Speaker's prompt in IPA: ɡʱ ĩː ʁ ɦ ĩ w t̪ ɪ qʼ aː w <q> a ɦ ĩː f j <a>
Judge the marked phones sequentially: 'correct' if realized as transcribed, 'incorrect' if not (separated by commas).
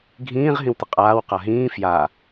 correct, correct